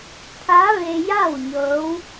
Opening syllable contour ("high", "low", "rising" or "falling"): rising